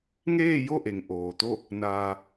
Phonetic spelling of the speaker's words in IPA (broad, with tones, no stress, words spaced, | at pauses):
ŋeː˥˨jo˥˨ʔe˩ŋ ʔoː˩t̪o˥˨ | naː˧